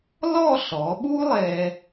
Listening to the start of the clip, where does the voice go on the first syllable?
falling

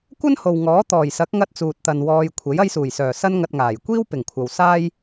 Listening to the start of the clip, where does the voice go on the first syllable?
high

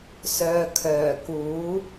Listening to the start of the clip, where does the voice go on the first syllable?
low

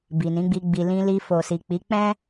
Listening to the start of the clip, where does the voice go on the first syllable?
low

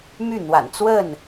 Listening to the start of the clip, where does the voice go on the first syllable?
falling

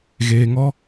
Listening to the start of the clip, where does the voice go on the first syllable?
low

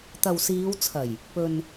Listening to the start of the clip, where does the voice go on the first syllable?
low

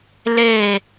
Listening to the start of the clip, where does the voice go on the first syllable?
falling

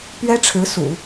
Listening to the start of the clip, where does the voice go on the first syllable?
high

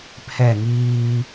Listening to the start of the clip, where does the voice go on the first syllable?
falling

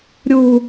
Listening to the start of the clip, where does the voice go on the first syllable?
high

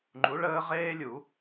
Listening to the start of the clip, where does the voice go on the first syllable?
rising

